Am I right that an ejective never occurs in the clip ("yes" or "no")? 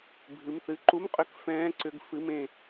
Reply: no